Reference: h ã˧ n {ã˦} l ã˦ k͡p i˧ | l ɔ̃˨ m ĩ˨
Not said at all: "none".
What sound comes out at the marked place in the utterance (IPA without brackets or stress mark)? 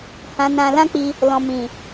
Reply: ã˧